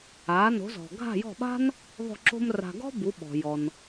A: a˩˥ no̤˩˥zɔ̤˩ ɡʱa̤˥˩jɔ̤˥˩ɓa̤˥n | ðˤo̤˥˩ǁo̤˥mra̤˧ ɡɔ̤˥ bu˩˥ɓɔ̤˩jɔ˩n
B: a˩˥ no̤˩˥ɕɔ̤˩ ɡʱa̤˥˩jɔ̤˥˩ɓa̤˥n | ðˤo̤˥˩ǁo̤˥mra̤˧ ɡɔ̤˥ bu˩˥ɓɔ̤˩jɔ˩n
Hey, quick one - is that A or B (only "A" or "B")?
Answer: A